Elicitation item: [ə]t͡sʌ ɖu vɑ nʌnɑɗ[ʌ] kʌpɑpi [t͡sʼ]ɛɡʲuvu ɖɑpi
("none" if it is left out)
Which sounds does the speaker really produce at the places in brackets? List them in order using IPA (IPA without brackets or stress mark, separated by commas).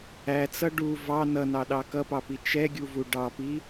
æ, ɑ, t͡ʃ